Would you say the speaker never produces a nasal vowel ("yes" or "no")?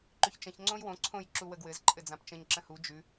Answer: no